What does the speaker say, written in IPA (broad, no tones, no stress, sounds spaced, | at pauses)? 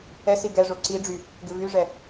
ɛ s i ɡ ɛ ʐ o ǀ i ɖ͡ʐ y | ɡ ɪ v y ʐ ɛ